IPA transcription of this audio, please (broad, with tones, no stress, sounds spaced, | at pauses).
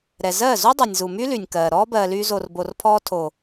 ɾ ɛ˨ z ɜː˦˨ z u˦ dˤ o˨ nʲ z u˨ m y˦ l y˨ nʲ k ɜː˨ ɾ ɔː˦ b ɜː˨ l yː˧ z o˨ r b o˨ r pʰ ɔː˧ tʰ oː˨